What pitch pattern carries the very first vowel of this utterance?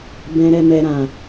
low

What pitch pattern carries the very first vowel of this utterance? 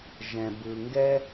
low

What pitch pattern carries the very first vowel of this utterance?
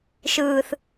low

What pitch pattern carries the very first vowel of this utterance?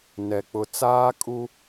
low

